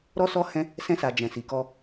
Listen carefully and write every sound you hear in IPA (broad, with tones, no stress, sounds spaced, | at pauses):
ɾ ɔ˦ s ɔ˦ h ɛ̃˦ | s ɛ̃˧ s a˨ d͡ʒ ɛ̃˨ s i˨ k ɔ˧